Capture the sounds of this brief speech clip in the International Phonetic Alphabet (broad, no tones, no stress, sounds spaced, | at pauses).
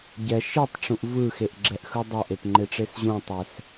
ɟ ɛ ʃ i tˤ ʈ͡ʂ ũ ʔ v ɯ x e ʔ ɡ͡ǁ ɛ ʔ x ɯ dˤ ʌ ʔ e p ŋ͡ǃ e ʈ͡ʂ e s ʑ ũ tˤ ɛ s